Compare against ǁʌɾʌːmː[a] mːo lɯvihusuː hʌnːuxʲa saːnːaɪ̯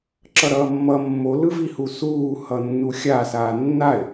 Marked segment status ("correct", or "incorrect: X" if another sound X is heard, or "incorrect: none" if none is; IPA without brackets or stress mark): incorrect: ʌ